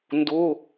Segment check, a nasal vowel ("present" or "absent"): absent